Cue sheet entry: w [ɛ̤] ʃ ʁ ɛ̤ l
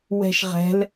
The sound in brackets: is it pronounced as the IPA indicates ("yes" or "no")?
yes